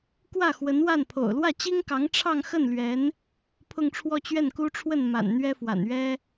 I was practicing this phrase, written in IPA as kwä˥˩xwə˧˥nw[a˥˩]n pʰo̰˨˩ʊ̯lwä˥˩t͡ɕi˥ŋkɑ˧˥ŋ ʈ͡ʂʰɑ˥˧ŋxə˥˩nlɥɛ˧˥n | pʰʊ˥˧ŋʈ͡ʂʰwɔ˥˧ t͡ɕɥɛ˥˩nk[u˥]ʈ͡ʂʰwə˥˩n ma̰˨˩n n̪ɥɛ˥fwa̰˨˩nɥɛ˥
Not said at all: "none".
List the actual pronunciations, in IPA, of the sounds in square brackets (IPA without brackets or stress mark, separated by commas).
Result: a˥˩, u˥